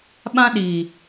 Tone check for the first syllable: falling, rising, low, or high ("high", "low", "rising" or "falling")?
high